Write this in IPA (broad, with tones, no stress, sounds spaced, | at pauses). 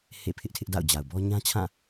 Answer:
h ḛ˦˨ pʰ ɪ˦ ʔ tʰ ɪ˦ ʔ d a̰˦˨ ʊ̯ d͡ʑ a˨ ʊ̯ b ɔ˦ ɲ ã˦ t͡ɕʰ ã˦˨